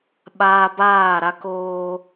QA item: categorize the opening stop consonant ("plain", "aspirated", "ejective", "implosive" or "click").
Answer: implosive